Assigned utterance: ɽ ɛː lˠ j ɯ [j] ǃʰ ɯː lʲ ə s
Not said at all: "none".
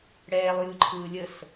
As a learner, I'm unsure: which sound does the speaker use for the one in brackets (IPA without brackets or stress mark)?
none